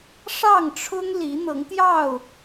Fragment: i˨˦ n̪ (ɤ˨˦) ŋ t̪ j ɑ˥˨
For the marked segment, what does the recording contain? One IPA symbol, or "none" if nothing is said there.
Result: ɤ˨˦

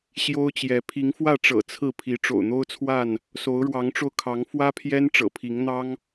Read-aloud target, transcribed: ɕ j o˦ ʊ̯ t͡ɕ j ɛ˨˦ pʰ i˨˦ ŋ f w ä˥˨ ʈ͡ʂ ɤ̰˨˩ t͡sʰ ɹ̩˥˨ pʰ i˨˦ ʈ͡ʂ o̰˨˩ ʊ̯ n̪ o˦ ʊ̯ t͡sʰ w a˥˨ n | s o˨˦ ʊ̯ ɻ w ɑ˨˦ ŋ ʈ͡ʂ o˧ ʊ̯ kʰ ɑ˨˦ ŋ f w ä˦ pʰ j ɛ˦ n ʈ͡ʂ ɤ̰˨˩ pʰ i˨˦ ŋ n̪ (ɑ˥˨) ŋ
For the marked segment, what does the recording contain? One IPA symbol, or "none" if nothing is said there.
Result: ɑ˦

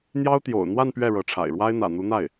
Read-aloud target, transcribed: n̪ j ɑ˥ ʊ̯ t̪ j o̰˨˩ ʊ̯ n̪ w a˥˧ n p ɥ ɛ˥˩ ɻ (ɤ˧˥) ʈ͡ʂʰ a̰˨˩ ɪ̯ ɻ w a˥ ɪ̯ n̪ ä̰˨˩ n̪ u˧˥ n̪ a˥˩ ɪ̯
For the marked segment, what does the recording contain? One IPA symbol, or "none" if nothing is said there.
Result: ɤ˧˥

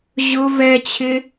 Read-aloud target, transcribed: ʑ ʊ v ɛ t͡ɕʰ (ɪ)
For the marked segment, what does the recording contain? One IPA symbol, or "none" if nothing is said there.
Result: ɪ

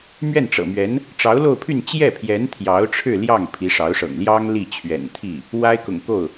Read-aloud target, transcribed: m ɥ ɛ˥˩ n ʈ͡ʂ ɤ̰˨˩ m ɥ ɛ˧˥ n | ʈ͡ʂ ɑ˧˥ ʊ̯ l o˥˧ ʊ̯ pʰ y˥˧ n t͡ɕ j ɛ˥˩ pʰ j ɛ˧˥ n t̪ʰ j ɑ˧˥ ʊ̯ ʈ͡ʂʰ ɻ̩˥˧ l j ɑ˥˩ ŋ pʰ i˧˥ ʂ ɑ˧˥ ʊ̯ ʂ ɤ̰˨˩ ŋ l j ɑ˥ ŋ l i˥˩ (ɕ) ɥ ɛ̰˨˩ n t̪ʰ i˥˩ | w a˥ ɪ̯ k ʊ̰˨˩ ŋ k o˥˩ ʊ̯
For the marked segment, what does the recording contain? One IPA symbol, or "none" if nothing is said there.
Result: t͡ɕʰ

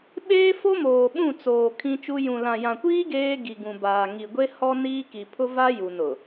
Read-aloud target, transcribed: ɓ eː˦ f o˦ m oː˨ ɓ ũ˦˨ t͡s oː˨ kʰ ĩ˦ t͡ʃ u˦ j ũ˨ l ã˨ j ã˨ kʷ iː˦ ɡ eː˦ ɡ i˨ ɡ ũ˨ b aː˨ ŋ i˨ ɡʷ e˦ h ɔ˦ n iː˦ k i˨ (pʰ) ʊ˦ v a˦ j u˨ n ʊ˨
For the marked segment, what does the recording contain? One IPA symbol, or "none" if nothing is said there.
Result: pʰ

